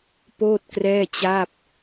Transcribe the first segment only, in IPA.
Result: p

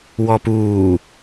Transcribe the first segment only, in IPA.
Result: w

